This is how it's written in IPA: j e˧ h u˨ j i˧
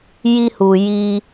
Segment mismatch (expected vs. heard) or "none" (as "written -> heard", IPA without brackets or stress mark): e˧ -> i˧